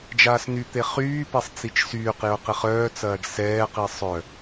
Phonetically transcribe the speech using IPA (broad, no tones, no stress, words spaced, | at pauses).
d͡ʒaːsnyt̪e χyːpesˤ t͡sit͡ʃsyːqjʊ qɪχœːt͡sɐːɖ sɛːqi sˤœ